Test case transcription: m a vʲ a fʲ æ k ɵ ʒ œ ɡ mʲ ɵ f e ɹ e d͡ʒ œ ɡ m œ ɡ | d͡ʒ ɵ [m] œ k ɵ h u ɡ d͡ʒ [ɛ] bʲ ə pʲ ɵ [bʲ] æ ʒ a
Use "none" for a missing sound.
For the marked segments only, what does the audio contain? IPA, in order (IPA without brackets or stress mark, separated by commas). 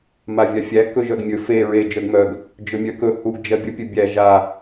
mʲ, ɜ, bʲ